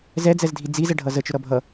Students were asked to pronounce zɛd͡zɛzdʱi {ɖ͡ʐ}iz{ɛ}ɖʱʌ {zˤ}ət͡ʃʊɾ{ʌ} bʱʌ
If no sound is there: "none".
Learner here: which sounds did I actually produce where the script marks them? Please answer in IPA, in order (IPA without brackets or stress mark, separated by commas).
d͡z, ɛ, z, ʌ